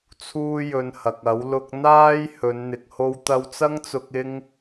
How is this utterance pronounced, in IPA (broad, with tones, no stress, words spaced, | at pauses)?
t͡sʰuː˥jɵ˧nhɐ˨k̚ɐ˨˥w lʊ˧k̚n̪aː˥j hɵ˨˧nn̪ɪ˨k̚ ho˧wt̪ɐ˧wt͡sɐ˥ŋt͡sʊ˧k̚ ɪ˥ŋ